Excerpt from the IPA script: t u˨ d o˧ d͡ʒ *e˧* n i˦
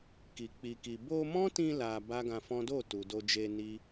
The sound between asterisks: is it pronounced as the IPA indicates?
yes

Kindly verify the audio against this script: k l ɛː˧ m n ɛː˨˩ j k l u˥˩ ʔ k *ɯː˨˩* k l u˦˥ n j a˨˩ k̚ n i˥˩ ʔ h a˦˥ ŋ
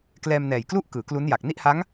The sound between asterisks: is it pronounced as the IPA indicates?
no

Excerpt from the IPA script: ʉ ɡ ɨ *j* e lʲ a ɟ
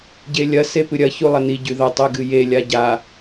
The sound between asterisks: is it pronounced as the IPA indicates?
yes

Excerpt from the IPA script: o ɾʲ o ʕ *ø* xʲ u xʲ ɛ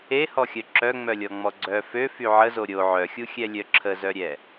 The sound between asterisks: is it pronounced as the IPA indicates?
no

